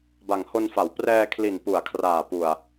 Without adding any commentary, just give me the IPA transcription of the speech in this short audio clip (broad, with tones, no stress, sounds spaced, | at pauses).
b a˨˩ ŋ h o˧ n f a˩˦ w p r ɛː˧ kʰ l i˨˩ n p u˩˦ a̯ kʰ r aː˨˩ p u˨˩ a̯